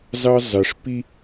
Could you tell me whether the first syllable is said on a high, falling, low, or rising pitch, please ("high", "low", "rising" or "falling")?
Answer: high